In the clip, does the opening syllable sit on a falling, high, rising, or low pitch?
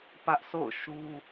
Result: high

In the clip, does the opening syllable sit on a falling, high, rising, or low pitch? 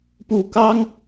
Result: low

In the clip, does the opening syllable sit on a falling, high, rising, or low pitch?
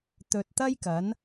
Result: low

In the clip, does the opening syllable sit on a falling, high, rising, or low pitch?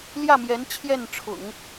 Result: falling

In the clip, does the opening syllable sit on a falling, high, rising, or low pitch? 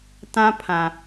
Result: high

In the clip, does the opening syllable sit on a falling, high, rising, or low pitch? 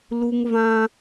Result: high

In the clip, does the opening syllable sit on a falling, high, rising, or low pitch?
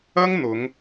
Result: high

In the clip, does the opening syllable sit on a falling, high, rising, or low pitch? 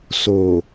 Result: low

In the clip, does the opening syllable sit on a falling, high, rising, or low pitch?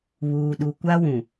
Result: low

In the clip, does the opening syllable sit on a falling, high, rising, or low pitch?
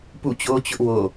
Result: falling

